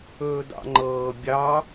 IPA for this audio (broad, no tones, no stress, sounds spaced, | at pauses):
ɵː d ɑ̰ ŋ͡ǃ ɤː bʲ ɑ